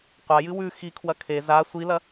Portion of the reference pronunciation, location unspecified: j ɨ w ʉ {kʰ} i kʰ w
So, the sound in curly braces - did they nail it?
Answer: no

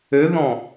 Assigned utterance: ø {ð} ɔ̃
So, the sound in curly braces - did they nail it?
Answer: yes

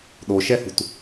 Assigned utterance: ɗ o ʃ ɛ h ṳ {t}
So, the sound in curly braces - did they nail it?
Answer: yes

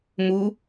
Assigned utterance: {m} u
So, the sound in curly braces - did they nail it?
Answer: yes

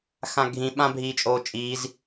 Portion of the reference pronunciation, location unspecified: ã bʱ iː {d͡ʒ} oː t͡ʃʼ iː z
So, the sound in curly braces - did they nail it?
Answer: no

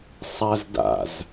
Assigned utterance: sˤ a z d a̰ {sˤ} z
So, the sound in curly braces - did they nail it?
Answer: no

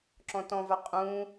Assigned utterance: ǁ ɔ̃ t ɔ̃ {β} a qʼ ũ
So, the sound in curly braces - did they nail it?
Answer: no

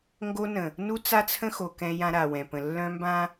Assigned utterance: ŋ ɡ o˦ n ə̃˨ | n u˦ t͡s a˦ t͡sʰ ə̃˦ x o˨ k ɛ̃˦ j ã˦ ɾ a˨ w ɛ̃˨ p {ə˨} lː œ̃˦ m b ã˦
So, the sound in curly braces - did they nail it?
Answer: no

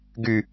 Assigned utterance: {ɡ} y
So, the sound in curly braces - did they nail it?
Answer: yes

